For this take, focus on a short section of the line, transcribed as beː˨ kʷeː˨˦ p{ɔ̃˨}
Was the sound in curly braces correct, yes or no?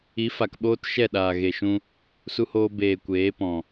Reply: yes